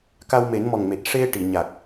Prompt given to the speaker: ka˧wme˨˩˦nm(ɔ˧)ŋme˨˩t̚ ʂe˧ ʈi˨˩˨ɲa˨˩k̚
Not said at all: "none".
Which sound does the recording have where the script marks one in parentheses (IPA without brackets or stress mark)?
ɔ˨˩